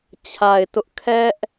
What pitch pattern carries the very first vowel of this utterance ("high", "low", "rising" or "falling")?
low